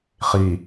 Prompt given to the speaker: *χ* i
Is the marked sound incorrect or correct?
correct